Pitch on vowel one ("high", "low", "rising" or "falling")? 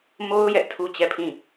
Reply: high